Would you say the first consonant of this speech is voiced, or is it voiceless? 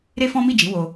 voiced